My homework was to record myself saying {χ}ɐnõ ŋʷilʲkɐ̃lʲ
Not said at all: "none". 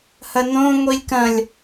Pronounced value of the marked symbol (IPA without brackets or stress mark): h